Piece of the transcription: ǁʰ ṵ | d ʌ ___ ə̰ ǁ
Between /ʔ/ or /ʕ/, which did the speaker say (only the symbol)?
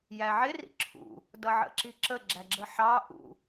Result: ʕ